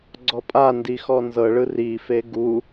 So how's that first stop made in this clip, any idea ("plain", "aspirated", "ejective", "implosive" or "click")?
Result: click